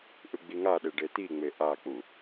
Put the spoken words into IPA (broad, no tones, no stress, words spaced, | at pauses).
ʔɯɡ͡biŋaɗe ɖet̪iŋ͡me ʔak͡pu